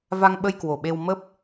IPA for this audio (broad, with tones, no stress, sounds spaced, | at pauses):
v a˧ ŋ ɓ ə˧ j k w o˧˩ ɓ e˧ w m ə˦˥ p̚